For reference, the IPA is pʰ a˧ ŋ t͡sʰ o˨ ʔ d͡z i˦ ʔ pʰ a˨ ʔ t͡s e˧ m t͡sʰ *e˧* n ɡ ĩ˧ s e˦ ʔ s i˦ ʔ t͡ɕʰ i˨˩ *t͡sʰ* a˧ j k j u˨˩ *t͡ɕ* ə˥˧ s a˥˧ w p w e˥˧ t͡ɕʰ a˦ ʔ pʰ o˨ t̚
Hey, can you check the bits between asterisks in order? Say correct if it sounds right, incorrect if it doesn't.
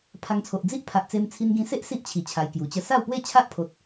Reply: incorrect: i˧, incorrect: t͡ɕʰ, correct

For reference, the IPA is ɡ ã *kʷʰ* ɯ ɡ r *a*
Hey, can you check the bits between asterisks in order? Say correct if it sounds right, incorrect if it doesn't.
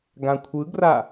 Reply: correct, correct

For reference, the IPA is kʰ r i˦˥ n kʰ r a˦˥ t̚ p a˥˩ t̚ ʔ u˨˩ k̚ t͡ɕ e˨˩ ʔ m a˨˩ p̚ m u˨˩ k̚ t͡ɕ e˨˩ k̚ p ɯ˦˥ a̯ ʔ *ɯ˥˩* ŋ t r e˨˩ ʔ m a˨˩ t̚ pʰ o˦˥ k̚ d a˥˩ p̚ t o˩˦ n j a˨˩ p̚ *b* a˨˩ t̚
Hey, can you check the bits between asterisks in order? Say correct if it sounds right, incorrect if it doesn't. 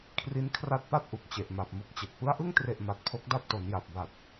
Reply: correct, correct

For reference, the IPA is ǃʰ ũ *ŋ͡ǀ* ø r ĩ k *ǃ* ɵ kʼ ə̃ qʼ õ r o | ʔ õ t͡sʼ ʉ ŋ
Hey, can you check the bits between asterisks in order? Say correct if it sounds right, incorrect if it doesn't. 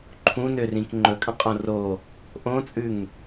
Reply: incorrect: n, incorrect: ŋ͡ǃ

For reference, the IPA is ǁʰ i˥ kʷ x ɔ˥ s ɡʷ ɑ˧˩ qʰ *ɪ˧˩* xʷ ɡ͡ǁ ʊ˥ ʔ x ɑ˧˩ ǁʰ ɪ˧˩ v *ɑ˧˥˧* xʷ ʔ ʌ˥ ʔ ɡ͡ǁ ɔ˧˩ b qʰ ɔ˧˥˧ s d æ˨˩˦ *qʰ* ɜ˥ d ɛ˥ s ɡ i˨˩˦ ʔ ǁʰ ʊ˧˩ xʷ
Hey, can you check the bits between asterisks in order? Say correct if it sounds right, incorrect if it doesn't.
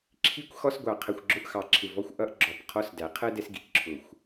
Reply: incorrect: ə˧˩, incorrect: ɔ˧˥˧, correct

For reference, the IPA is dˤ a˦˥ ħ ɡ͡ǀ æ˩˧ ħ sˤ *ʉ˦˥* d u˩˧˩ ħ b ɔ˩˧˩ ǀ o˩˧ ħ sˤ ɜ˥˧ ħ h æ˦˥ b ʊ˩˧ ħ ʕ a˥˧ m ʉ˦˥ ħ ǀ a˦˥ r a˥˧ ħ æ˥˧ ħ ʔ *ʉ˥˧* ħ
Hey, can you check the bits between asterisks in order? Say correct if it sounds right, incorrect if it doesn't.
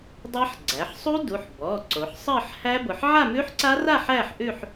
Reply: incorrect: u˦˥, correct

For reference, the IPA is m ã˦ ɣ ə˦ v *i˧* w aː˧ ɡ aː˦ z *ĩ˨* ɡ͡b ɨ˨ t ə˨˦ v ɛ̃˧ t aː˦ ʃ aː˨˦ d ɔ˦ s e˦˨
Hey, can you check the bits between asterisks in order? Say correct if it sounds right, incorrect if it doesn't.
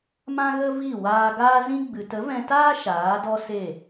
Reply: incorrect: i˦˨, incorrect: ĩ˦

